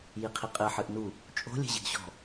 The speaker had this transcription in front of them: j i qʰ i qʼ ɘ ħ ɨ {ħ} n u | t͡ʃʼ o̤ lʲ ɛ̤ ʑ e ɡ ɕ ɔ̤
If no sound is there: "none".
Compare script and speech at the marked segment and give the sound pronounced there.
ʔ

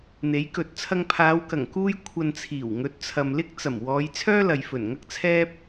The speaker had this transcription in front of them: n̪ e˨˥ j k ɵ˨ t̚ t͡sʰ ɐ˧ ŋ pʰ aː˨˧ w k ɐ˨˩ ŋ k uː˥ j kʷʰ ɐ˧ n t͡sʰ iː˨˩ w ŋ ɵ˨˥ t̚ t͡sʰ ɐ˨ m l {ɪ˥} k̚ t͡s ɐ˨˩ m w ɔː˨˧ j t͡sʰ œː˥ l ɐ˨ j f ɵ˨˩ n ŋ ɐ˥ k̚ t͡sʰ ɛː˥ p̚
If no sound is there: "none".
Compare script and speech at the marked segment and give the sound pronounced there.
ɪ˥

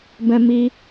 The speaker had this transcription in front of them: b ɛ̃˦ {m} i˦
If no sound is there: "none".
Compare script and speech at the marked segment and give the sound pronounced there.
m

